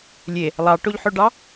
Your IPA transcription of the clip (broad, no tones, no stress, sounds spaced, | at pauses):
lʲ e | lˠ ɑ ʈ o ʎ ħ ø ɖ ɑ